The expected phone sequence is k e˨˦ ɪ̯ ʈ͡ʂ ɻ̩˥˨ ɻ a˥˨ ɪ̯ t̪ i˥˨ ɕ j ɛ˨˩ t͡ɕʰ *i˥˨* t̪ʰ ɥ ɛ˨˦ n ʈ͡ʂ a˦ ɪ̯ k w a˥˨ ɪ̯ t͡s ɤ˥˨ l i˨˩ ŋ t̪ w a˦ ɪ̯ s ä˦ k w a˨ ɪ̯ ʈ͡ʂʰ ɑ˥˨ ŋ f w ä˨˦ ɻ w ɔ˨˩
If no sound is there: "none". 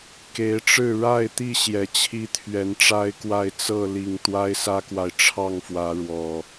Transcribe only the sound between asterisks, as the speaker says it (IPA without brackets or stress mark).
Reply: i˦